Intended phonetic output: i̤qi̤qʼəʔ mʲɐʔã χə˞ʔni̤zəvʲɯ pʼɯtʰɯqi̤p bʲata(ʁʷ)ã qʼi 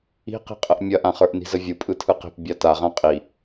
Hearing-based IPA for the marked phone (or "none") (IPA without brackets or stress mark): ʁ